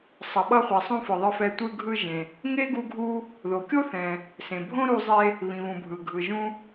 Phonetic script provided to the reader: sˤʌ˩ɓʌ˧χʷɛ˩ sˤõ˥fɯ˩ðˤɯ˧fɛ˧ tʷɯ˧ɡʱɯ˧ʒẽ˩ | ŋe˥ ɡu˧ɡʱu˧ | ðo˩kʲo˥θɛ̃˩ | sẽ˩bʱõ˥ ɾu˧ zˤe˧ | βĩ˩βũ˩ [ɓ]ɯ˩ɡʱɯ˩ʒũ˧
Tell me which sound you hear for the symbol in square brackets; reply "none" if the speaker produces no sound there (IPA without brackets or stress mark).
bʱ